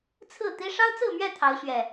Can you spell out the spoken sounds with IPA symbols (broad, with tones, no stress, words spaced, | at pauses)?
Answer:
t͡sʰɹ̩˥˨t̪i˦ ʂɑ˦ʊ̯t͡sɹ̩˥˨mɥɛ˥˨ t̪ʰɑ˨˦ʊ̯ɕɥɛ˨˩